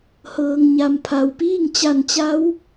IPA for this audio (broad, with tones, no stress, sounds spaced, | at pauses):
h ɤː˩ ŋ ɲ a˩ m pʰ a˩ w p iː˥˨ ŋ t͡ɕ a˧˩ n t͡ɕ a˧˥ w